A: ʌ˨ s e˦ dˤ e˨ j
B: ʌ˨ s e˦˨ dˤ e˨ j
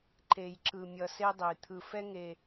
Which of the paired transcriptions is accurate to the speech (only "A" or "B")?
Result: A